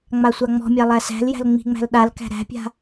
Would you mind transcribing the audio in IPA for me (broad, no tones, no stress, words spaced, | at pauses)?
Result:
ŋ͡masʷaŋ͡mɔ̤mʲæ lˠæsæ̤ljæ̤l ŋ͡mi̤ŋ͡mæ̤l ɗalkæ̤ ɾæ̤pʲa̤